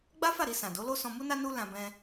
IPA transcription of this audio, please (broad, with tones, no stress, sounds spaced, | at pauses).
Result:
ɡ͡b a˦ f a˦˨ ɾ i˧ s ã˨ d o˨˦ l o˦ s ɔ̃˧ m u˦ n a˦ n u˦ l ã˧ b ɛ̃˧